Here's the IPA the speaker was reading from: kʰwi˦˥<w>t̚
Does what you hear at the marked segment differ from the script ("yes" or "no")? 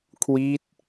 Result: yes